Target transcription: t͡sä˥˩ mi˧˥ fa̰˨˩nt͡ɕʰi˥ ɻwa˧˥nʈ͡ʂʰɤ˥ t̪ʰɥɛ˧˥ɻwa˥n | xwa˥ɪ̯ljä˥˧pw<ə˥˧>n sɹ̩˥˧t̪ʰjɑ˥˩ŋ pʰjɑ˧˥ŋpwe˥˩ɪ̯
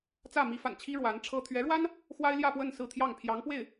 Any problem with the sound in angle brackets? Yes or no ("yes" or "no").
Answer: no